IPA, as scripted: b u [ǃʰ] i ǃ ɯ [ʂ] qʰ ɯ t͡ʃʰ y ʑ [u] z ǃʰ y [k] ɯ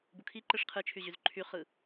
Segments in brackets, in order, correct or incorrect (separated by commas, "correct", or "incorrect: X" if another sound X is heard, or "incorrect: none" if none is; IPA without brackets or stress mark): incorrect: kʰ, correct, incorrect: y, incorrect: χ